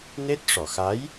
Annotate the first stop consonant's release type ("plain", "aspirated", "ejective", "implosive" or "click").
plain